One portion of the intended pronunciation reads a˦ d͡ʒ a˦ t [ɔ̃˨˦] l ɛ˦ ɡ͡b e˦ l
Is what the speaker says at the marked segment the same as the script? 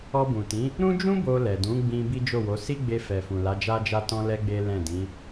no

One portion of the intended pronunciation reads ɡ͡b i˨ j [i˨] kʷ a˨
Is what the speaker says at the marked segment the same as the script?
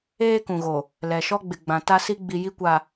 no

